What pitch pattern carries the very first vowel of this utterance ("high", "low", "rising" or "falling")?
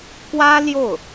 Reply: high